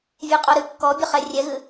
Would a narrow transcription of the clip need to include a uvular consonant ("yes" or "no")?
yes